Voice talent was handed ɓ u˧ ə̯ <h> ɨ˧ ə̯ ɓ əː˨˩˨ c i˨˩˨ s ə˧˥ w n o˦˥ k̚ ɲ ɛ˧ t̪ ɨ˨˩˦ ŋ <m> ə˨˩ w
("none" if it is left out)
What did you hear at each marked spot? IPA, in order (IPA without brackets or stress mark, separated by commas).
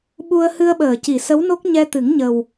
h, ɲ